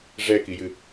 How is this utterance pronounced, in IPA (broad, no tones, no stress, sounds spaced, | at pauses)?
ʐ ɛ k i j ɨ